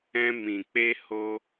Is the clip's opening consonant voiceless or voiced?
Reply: voiced